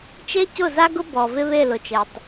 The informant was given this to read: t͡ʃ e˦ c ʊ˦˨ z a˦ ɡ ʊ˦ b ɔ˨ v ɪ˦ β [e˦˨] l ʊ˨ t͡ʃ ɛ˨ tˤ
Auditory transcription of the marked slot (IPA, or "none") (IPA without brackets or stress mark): e˦˨